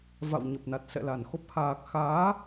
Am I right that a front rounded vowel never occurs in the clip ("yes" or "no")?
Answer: yes